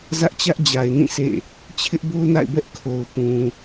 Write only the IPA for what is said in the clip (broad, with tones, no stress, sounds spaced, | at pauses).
z ä˦ ʔ t͡ɕ ä˦ ʔ d͡ʑ a˨ ɪ̯ n ĩ˦˨ s ḛ˦˨ | t͡ɕʰ ɪ˦ ʔ b o˦ n a̰˦˨ ɪ̯ b ɛ˦ ʔ kʰ o˨ ʊ̯ p ũ˨